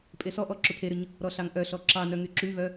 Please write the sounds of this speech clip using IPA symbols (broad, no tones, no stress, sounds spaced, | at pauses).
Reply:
pʼ e s ɔ ʔ ɔ ǁ ʏ pʰ e ɾ ʏ ɲ | ɾ ɔ ɬ ɑ ŋ ʔ œ ɬ ɔ ǁ ɑ n œ ŋ y ǁ y β œ